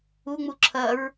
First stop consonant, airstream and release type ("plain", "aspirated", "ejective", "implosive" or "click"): click